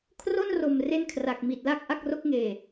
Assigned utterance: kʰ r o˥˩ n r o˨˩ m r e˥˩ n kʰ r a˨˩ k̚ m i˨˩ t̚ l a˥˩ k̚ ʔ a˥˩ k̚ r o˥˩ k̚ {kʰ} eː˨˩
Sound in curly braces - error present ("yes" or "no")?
yes